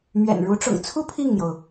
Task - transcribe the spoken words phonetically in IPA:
m ɥ ɛ̰˨˩ n ɻ u˧˥ ʈ͡ʂ ʊ̰˨˩ ŋ t͡sʰ u˥ pʰ i˥˩ ŋ n̪ j o˩ ʊ̯

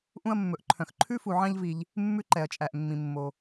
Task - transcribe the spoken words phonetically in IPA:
ʔ ũ˦ ɐ̯ mː ɵ˨ ʔ ǃʰ œ̃˩ x ǃʰ ʉ˥ f u˨ ʕ ɑ̃˦ ʎ v i˨ ʎ | mː ʉ˦ ǃ ɛ˩ ɐ̯ t͡ʃʼ æ˩ ʔ mː ĩ˩ mː o˩

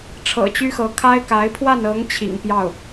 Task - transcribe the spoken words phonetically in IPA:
ʈ͡ʂʰ ɤ̰˨˩ t͡ɕ y˥ x ɤ˧˥ kʰ a˥ ɪ̯ k a˧˥ ɪ̯ pʰ w a˥˩ n ɤ˧˥ ŋ t͡ɕʰ ḭ˨˩ ŋ p j ɑ˥˩ ʊ̯

